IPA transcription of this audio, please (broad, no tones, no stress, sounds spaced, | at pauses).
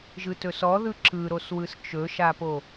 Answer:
ʒ ɯ t ɵ s ɔ ð ɯ ǁ ɯ ɾ o s w ɯ s t͡ʃ ɵ ʃ a p o